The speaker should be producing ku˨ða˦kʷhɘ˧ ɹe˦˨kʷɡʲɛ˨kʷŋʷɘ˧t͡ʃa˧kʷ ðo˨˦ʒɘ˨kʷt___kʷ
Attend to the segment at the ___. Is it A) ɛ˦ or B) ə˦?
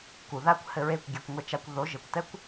A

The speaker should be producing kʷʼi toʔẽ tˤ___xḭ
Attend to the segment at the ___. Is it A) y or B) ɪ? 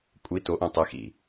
B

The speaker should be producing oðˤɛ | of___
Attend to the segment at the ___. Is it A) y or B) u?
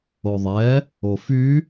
A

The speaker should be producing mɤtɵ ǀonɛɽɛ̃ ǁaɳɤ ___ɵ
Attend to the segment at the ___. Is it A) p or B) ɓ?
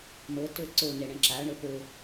A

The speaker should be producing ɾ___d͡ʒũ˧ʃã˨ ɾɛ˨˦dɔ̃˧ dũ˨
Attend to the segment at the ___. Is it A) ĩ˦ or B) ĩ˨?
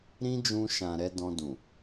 A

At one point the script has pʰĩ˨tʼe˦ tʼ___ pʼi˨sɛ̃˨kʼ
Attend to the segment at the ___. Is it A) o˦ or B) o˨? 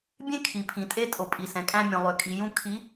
B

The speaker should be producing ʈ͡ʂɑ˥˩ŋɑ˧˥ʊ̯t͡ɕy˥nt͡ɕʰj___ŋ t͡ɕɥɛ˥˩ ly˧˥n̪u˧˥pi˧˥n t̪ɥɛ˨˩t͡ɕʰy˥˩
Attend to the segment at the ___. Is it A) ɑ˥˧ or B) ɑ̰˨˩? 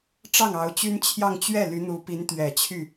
A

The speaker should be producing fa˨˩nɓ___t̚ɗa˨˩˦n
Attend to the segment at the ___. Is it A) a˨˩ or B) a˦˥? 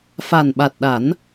A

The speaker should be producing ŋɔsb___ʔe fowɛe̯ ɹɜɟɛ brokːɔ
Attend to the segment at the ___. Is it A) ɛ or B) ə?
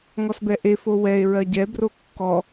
A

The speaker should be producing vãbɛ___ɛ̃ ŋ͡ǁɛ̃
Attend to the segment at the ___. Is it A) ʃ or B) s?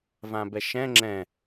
A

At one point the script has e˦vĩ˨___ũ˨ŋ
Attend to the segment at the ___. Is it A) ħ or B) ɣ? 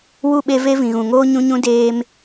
B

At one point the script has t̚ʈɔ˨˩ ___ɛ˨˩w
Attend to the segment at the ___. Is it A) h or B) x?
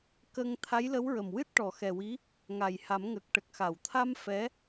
B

